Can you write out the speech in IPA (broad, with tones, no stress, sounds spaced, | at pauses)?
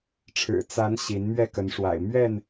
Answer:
ʈ͡ʂʰ ɻ̩˨˩ t͡s a˨˦ n ɕ i˨˦ n m ɥ ɛ˥˨ k ə˨˦ n ʂ w a̰˨˩ ɪ̯ m ɥ ɛ˥˨ n